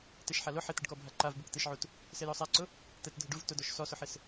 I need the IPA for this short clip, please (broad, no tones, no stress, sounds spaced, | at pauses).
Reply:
t e ʃ ħ a l ʊ ħ ɪ t̪ ɪ ɖ k ɔ bʱ a ǃ a v b u k t̪ e ʃ ʕ u t | s e j ɔ sˤ a ǀ ʊ | t̪ ɛ t dʱ ɪ ɖ u v t ʊ d ɔ ʃ s ɔ s ʊ ħ ɪ s